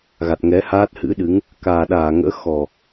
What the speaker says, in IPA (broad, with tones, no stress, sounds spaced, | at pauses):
ɣ a˨˩ t̚ ŋ ɛ˨˦ h aː˦˥ t̚ h ɨ̰˧˥ ɗ ɨ˨˦ ŋ | k aː˨˩ ɗ aː˧˩ ŋ ə̰ː˧˥ x ɔ˨˩